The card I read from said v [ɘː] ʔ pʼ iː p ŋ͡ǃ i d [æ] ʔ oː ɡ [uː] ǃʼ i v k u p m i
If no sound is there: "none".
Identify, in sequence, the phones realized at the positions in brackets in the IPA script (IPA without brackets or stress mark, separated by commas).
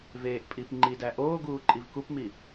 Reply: eː, æ, uː